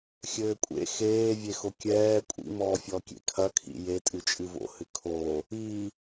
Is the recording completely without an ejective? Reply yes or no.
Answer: no